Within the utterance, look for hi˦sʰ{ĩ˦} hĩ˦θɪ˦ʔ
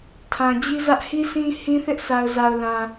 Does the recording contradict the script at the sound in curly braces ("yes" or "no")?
no